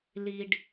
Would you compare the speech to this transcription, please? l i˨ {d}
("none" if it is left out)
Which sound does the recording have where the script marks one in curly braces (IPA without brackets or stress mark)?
ɖ